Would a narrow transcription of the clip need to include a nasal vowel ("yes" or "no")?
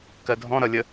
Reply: yes